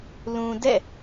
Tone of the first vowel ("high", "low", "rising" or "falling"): low